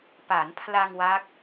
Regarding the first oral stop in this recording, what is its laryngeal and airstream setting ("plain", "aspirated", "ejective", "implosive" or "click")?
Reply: plain